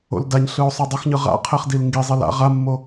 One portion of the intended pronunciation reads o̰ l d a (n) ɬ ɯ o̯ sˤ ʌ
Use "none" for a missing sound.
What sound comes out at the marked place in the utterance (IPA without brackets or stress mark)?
ɲ